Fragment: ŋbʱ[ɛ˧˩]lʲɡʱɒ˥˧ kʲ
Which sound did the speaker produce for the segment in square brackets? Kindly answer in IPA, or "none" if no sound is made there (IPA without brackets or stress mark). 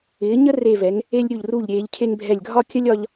ɛ˧˩